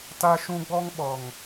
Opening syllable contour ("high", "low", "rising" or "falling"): high